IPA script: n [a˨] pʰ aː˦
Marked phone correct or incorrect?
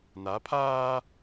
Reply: incorrect